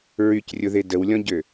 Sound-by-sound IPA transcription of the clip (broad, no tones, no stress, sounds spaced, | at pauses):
ɹ y c rʲ ʊ ð e d ə w lʲ ɔ̃ ɟ ø